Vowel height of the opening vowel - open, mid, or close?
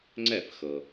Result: mid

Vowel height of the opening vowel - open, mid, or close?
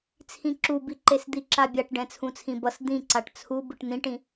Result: close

